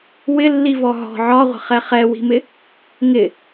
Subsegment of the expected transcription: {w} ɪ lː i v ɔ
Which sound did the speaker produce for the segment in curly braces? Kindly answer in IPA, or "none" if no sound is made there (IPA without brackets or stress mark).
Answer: w